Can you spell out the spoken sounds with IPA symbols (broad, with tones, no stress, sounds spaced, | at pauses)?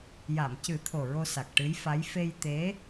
j a˨˩˨ m c ɨ˨˩˦ t̪ʰ o˨˩ ɹ o˧ s a˨˩ k̚ ʈ ɨ˧˥ j f a˧˥ j f e˧ j t̪ e˧˥